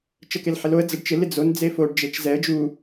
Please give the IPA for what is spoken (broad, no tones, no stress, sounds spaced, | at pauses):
t͡ʃ ə k e l ħ ɪ l o ə̯ d͡z ə ɖ t͡ʃ ɪ l ɪ d͡z o n d͡z e f o ɖ d͡ʒ e t͡ʃ z ɛ ə̯ d͡ʒ u